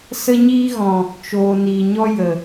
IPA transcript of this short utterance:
s ə˦ ɲ iː˦ ɣ ɔ̃˨ | t͡ʃ oː˨ n iː˨ ɲ ɔ˦ j ə˨

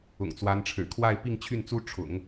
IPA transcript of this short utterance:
ʊ̰˨˩ ŋ t͡s w a˧˥ n ʈ͡ʂʰ ɻ̩˨˩ kʰ w a˥˧ ɪ̯ p i˥˧ ŋ t͡ɕʰ y˥˩ n t͡s u˥ ʈ͡ʂʰ ʊ̰˨˩˦ ŋ

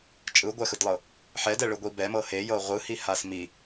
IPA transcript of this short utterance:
t͡ʃʼ ɯ ɡʷ ɛ x ɯ d lˠ ɤ | ħ ɛ d ɛ ɭ ɯ ɡʷ i b ɛ m ɤ h e j ɤ ʁʷ ɯ h i h a s m i

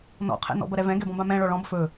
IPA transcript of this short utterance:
n ɔ̰ qʰ ɛ̰ n ɔ̰ b ɐ ɾ ɛ v ɛ̃ ɡ ɛ b ɔ̃ b ã m ɛ̃ ɭ ɔ ɭ ɔ̃ b f ɵ

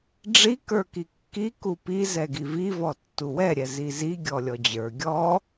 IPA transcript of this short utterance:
ɖ͡ʐ i k ə˞ k i kː i k u p i z ɛ ɡ i v i v ɔ tː u w ɛ ɾʲ ɛ z i z i ɡʲ ɔ lʲ ɔ d͡ʑ ə˞ ɡʲ ɔ

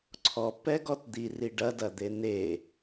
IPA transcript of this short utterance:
ǀʰ ɔ p ɛ ɡ ɔ t d̪ i r i ɖ ɐ d ɐ d̪ e n e

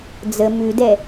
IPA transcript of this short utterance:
d͡z ə m ʉ d ɛ

